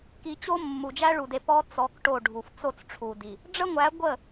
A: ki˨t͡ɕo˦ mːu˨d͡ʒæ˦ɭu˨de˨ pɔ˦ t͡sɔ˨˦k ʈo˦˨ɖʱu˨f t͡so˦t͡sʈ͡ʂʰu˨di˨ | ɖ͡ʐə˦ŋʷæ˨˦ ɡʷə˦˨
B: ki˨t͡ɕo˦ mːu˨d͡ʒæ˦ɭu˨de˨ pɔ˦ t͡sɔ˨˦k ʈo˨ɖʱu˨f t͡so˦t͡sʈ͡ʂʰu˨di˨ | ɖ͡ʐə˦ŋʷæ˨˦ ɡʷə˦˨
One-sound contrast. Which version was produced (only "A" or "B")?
A